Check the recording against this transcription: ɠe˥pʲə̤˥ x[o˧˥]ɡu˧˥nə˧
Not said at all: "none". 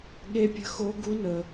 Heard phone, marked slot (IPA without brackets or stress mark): o˧˥